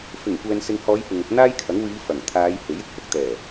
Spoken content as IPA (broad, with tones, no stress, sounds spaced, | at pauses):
f ɪ˨˩ ŋ kʷ ɛː˨ n s ɪ˨ ŋ h ɔː˨˧ j p ɪ˨ ŋ ʊ˧ k̚ n̪ aː˥ j kʰ ɐ˨˥ ŋ w iː˨˧ f ɐ˨˩ ŋ t̪ʰ aː˨˧ j h e˨˥ j ɪ˥ k̚ h ʊ˧ k̚ t̪ ɛː˨˩